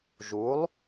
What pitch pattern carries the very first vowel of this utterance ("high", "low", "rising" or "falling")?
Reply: rising